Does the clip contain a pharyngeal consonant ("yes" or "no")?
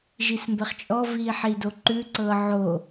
yes